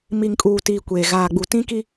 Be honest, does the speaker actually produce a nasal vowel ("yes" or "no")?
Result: yes